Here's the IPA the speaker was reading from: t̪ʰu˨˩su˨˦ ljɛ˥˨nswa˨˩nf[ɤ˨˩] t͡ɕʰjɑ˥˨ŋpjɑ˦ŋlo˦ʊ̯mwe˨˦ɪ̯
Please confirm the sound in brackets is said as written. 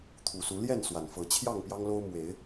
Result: no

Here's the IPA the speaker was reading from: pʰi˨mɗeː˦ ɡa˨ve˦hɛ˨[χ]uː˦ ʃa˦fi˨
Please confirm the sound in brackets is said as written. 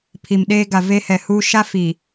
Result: no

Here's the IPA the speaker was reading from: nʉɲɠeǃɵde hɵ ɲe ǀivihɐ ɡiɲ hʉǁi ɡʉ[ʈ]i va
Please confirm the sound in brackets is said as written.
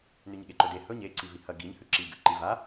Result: no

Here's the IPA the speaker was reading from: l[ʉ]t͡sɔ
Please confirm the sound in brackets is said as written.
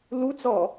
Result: no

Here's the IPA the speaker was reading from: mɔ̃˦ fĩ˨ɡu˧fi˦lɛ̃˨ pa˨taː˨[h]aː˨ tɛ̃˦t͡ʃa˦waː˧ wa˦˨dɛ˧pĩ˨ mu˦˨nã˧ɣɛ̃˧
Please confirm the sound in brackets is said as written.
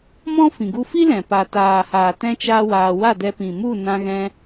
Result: yes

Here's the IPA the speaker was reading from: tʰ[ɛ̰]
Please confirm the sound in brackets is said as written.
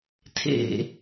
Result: no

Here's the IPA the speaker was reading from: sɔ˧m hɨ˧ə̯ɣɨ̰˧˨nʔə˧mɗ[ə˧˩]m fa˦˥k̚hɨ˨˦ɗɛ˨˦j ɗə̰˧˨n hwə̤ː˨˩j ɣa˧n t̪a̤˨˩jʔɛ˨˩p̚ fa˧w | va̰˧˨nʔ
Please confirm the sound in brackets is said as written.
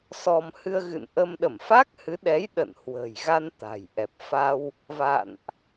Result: yes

